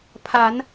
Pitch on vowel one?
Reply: rising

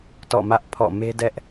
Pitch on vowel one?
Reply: falling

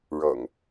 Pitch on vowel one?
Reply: low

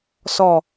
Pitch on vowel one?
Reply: falling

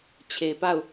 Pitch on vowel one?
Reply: low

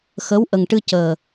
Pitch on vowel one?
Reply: rising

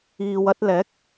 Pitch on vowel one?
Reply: low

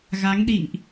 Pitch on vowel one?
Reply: rising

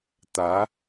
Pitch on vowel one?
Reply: rising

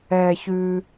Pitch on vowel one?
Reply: high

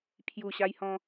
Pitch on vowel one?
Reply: low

